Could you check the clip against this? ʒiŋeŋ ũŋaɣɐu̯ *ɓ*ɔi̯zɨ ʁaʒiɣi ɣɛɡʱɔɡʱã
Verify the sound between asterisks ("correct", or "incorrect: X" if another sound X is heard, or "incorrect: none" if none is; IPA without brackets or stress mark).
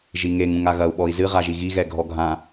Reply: correct